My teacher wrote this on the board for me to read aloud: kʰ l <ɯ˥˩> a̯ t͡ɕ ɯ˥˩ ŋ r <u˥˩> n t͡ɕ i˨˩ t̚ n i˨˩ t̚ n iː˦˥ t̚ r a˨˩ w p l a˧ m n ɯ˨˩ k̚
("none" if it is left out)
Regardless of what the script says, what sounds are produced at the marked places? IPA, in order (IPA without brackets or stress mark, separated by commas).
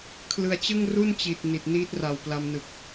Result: ɯ˧, u˥˩